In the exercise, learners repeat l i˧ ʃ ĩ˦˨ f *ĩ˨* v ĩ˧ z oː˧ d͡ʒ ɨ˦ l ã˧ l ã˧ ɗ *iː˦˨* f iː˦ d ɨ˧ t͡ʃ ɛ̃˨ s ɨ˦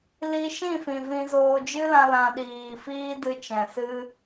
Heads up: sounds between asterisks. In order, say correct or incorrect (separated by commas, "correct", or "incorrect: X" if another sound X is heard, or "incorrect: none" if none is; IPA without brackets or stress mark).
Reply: correct, incorrect: iː˨